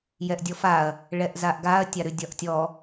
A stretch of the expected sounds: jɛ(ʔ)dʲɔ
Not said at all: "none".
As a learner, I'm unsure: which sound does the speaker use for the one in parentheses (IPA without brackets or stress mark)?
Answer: ʔ